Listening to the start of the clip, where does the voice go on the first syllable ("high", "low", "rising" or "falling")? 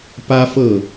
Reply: high